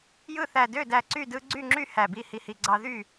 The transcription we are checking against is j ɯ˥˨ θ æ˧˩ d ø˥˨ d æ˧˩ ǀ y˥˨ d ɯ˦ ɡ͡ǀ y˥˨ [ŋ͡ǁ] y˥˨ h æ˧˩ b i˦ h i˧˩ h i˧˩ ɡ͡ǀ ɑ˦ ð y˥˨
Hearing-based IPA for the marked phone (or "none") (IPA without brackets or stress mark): ŋ͡ǁ